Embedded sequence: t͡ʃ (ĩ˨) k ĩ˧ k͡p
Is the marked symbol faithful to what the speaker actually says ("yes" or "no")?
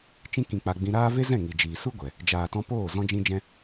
no